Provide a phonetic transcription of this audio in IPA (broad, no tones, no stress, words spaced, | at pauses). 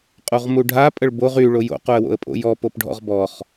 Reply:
qʼuʁmuɖʱa pʼəɭboʁ y ɭojo̰ quə̯wo̰ə̯pʼo̰jɔ popɖʱɔ̰ʁbɔχ